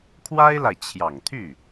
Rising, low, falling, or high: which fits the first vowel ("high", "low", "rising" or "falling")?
high